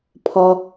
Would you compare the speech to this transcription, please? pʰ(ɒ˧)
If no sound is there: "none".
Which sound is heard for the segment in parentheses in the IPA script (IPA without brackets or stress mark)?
ɒ˧